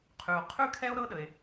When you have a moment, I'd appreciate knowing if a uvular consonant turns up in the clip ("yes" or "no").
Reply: yes